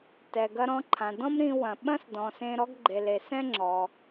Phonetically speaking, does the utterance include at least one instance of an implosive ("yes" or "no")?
yes